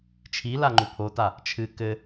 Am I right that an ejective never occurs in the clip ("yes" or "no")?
yes